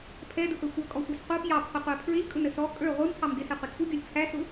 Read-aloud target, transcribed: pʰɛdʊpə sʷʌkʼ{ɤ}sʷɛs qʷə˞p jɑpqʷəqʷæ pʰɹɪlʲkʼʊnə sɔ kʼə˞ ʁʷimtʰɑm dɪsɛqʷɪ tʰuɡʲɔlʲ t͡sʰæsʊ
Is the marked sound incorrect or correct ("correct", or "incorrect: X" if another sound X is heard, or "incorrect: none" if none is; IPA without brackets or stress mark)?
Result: incorrect: ɔ